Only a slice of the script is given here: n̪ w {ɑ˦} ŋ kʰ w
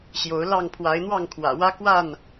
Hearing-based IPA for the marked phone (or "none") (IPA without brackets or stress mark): ɑ˥˨